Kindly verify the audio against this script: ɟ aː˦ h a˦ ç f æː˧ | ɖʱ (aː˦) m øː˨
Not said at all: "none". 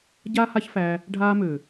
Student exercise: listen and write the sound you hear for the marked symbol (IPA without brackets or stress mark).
aː˧